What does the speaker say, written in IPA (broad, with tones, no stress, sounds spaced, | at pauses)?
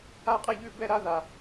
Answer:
a˥˧ qʼ ɛ˥˧ ʎ ʉ˥˧ b ɛ˥˧ ɾ a˥ ð a˧